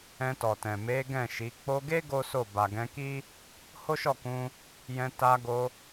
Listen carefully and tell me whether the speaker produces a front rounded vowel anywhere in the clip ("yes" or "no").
no